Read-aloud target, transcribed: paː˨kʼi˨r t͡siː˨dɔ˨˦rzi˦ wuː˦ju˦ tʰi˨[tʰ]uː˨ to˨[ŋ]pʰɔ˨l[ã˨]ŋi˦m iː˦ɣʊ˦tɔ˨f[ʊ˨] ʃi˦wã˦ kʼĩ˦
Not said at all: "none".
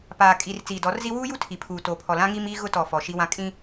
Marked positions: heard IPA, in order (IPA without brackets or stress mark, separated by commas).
pʰ, none, ã˦, ɔ˨